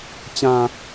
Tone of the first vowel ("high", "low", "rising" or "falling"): low